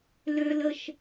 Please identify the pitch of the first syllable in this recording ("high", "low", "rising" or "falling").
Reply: high